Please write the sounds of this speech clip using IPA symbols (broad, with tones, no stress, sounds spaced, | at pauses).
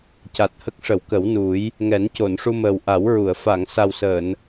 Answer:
c a˨˩ t̚ h ə˦˥ k̚ ʂ ə˨˩˦ w k ə˨˩˦ w n u˨˩˦ j | ŋ ɛ˨˩˦ n c o˨˩˨ n ʂ u˧ m əː˨˩ w ʔ a˨˩˦ w ɹ u˨˩˨ ə̯ f a˨˩˨ ŋ s a˨˩ w s əː˨˩˨ n